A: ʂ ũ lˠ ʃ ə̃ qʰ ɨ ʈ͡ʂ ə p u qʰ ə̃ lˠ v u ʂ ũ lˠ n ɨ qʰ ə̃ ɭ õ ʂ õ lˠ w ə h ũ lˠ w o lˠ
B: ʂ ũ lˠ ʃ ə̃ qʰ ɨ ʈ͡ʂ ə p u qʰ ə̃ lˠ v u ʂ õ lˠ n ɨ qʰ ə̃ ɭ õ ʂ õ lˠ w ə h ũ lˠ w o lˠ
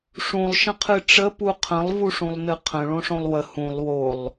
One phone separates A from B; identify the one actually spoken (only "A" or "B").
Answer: A